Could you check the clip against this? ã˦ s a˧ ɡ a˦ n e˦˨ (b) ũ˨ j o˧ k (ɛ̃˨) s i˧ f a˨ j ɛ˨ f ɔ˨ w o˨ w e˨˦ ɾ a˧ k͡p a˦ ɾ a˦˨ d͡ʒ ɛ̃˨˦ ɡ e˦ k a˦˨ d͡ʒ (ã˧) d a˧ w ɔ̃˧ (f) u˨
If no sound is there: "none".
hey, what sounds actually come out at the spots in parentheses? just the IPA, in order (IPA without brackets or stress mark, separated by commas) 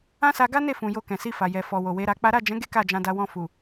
f, ɛ̃˨, ã˧, f